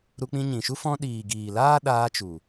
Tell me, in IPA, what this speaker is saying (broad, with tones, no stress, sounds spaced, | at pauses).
ɾ u˧ k͡p ĩ˧ ɲ ĩ˨ ʃ u˦ f ɔ̃˧ ɗ iː˨ ɡ iː˨ l aː˦ ɗ aː˧ t͡ʃ u˨